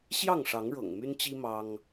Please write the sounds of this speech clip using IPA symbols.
ɕ j ɑ˥˨ ŋ ʂ ɑ˨˦ ŋ ɻ ɤ̰˨˩ ŋ m y˦ n t͡ɕ i˦ m ɑ˦ ŋ

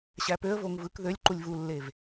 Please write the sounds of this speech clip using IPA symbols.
ɕ æ p ø ə̯ v o ŋ v ɯ k ð ø lʲ ǃ u lʲ v u lː e v

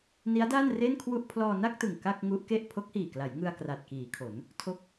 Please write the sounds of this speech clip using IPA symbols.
n i˦˥ a̯ d aː˥˩ n r e˥˩ n kʰ w u˥˩ ʔ pʰ l ɔː˧ n a˥˩ k̚ t ɯ˨˩ ŋ k a˥˩ k̚ ŋ u˦˥ ʔ k e˥˩ ʔ pʰ o˦˥ k̚ h iː˨˩ k l a˩˦ j ŋ ɯ˧ a̯ k r a˨˩ t̚ k iː˩˦ kʰ o˩˦ n | tʰ o˦˥ k̚

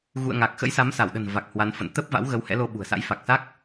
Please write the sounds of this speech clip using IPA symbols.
ɣ ṵ˧˨ ə̯ ŋ a˨˩ k̚ x ə̰˧˥ j s a˨˦ m s a˧˩ w ɗ ə̤˨˩ n v a˨˩ k̚ h w a˨˦ n f ə̰˧˨ n t̪ ə˦˥ p̚ v a̰˧˥ w ɣ ə˨˦ w h ɛ̰˧˥ l o˧ ɓ ṳ˨˩ ə̯ s a̰˧˥ j f a˨˩ k̚ s a˦˥ k̚

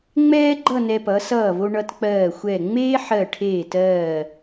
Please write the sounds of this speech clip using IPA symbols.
ŋ͡m ɛː˥ ɡ͡ǃ ʌ˥˧ n ɛ˧ p ʌ˩˧ s ʌː˧˩ v o˧ ɳ ʌ˧ t k͡p ɜː˧˩ xʷ ɛ˧˩ ŋ͡m eː˥ ħ ɜ˧˩ ʈʰ eː˧˩ t ɜː˧˩

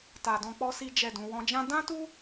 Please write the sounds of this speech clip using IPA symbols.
t a˨ d ɔ̃˧ k͡p ɔ˦ s i˦ d͡ʒ ɛ˦˨ d ũ˨˦ w ɔ̃˧ d͡ʒ ã˦ d ã˦ t u˦

